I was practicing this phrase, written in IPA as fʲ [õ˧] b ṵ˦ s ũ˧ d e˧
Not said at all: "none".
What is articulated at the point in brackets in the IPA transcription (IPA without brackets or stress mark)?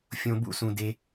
õ˧